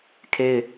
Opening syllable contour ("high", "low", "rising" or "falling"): high